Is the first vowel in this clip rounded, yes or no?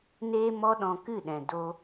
no